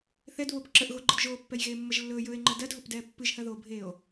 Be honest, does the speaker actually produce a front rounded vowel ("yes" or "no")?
no